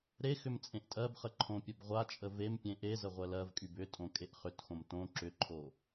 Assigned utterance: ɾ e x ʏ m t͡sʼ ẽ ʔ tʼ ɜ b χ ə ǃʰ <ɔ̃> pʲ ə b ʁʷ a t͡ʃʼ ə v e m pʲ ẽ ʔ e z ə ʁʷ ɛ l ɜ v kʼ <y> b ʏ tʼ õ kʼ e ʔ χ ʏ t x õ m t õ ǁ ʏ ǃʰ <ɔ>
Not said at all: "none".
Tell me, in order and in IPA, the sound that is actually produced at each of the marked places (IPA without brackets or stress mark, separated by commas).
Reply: õ, y, o